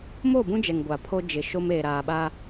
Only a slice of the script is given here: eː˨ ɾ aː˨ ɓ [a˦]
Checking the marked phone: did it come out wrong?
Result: no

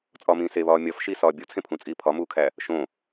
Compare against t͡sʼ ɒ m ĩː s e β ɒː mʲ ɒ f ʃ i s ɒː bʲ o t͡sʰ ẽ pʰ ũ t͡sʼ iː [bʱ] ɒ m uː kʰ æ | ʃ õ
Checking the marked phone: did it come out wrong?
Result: yes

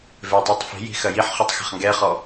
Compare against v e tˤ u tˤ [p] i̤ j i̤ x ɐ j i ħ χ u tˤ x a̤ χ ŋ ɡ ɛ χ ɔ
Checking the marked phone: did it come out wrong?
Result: yes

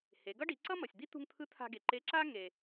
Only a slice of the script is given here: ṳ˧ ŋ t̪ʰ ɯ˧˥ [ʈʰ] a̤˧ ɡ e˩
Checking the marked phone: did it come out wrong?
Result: yes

